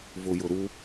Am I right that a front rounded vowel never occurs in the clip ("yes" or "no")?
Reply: yes